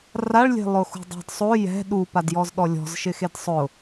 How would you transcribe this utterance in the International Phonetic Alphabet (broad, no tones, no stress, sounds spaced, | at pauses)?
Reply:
r a ɭ lʲ e̤ lˠ ʊ x ṳ dˤ ɛ̤ d sˤ o j ɛ̤ ɗ u p a d j ɔ z ɗ ɔ lʲ ɔ̤ z ʃ ɪ x e d sˤ ʊ